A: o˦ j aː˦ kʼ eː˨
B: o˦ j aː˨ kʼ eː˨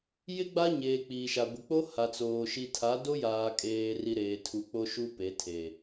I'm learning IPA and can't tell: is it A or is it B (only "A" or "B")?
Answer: B